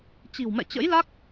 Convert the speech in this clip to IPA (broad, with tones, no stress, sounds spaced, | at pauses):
t͡ɕ i̤˨˩ w m ɛ̰˧˨ t͡ɕ ə̰˧˥ j l a˦˥ k̚